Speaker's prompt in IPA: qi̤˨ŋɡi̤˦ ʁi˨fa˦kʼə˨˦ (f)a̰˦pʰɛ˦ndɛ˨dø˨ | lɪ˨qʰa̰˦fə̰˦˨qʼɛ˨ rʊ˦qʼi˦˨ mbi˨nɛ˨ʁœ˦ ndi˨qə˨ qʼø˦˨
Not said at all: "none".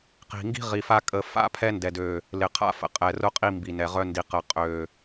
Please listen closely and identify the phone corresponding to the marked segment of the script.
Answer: f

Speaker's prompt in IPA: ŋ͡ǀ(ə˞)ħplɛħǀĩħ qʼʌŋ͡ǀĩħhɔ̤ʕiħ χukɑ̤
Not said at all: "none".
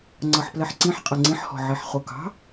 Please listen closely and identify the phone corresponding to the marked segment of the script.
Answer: ʌ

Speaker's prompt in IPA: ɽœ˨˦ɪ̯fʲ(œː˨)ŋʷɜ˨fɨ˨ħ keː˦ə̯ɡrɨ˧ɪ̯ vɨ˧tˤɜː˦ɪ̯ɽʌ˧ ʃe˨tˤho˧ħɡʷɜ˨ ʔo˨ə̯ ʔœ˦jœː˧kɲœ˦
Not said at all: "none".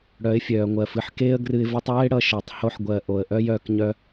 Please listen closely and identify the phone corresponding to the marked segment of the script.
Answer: œː˨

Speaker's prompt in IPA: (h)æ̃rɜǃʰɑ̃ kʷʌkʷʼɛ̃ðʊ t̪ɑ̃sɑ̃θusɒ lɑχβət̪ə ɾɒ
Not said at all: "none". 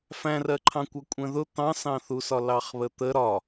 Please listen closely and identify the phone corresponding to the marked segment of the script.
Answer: f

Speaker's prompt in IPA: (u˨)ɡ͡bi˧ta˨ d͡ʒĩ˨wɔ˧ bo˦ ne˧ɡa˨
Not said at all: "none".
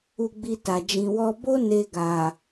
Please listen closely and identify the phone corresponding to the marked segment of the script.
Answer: u˧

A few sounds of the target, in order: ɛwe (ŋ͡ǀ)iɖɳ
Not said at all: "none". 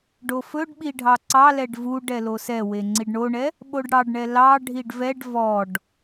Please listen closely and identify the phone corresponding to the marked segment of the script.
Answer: ŋ͡ǀ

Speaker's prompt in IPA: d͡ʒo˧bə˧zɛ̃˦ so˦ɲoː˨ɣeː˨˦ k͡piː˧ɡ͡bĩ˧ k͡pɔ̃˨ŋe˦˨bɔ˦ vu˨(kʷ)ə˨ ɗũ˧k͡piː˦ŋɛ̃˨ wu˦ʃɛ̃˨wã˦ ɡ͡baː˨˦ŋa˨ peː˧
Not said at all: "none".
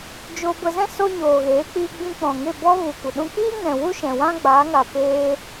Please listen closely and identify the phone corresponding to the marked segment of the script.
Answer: kʷ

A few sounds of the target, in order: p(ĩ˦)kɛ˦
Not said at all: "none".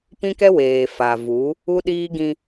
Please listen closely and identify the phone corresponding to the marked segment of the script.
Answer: ĩ˦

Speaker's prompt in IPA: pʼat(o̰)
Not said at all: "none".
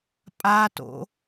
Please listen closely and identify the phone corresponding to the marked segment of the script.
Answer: o̰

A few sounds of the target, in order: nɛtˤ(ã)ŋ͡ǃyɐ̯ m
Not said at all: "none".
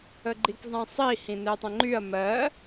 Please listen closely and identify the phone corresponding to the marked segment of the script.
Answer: ə̃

